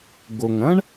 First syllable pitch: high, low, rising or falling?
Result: low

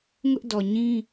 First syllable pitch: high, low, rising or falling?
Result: high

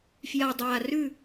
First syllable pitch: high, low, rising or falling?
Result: low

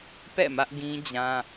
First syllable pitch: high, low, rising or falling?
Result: falling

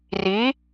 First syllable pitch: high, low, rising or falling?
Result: rising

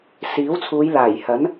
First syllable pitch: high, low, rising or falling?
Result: rising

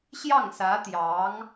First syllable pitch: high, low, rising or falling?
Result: falling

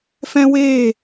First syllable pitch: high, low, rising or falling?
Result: high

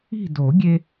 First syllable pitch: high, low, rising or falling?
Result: falling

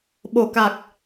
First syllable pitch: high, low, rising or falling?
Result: low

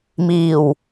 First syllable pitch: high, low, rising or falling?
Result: low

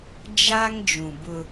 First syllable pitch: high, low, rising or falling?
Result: high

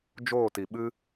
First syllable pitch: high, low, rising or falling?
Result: falling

